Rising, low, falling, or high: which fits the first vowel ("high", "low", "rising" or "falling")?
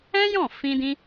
high